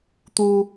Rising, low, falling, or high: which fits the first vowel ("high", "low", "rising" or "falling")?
low